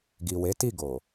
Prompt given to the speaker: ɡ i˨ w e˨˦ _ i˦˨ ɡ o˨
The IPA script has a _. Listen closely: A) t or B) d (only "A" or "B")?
A